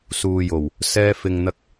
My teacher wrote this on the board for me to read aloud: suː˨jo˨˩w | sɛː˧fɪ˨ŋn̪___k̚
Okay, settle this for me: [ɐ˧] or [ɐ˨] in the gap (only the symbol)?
ɐ˧